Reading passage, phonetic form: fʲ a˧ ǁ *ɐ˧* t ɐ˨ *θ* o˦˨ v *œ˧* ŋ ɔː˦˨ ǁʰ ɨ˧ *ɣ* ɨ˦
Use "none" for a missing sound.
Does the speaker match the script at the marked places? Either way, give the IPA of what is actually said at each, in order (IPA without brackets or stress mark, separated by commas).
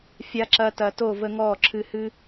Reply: ɐ˧, t, ə˧, h